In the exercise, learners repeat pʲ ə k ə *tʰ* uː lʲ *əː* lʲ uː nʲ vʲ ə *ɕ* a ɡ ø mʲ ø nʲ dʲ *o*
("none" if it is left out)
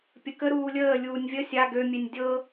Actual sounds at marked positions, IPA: ɾ, əː, sʲ, ɤ

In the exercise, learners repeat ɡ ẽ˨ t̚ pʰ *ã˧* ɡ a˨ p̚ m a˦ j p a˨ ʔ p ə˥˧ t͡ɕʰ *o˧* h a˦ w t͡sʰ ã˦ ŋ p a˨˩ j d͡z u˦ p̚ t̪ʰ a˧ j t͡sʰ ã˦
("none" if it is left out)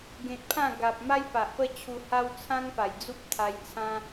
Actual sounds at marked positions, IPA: ã˥˧, u˧

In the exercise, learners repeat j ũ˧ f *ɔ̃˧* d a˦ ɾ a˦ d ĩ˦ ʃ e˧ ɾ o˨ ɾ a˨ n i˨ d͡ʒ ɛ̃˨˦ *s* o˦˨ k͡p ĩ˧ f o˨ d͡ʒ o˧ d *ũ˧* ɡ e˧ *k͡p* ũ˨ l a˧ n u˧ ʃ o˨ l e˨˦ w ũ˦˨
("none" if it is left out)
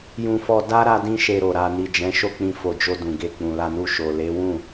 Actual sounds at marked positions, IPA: ɔ˧, ʃ, ũ˨, k͡p

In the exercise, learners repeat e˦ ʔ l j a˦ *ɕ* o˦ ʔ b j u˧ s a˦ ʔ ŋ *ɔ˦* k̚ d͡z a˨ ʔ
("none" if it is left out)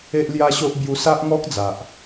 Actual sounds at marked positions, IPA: ɕ, ɔ˦

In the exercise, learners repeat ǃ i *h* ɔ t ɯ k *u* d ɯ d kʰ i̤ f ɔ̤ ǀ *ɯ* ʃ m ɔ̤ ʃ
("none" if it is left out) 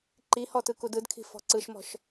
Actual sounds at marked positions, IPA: h, u, ɯ

